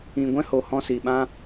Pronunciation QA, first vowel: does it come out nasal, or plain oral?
nasal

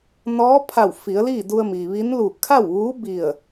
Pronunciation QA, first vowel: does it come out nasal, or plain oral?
oral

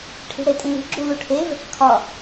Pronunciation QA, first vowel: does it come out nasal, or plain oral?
oral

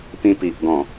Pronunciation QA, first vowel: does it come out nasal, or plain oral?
nasal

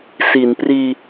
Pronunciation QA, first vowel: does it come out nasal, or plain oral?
oral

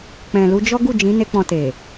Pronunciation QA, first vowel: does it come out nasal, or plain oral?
nasal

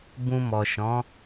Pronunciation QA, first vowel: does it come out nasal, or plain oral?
nasal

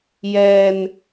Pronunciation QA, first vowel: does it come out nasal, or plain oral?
oral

